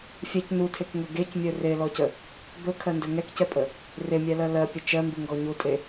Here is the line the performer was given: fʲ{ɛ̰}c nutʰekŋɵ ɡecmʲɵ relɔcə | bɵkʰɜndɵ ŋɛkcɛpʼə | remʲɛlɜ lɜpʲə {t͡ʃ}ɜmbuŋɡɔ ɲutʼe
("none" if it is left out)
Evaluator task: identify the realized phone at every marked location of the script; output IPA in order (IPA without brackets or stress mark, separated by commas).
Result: ɛ, t͡ʃ